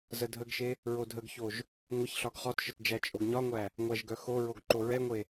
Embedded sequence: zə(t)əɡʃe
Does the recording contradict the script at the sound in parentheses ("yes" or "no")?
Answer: yes